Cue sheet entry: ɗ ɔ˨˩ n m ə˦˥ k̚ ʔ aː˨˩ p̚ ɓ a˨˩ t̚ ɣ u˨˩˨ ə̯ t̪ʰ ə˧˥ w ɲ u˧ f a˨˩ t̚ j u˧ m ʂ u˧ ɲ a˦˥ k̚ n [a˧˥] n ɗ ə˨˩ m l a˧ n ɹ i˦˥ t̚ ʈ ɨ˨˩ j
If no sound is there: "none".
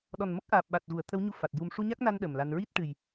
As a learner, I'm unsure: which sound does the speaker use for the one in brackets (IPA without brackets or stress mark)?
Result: a˧